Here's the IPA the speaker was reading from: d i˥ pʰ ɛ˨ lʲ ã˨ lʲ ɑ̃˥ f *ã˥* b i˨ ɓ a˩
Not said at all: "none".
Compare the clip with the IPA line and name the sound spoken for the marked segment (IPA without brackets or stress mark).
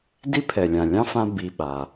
ã˦